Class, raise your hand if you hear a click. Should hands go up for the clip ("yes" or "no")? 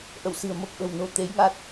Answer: no